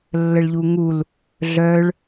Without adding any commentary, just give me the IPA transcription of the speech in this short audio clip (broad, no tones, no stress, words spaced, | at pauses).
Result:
lːəɭʎuŋul | ɮœɭ